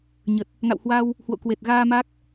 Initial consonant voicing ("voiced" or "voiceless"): voiced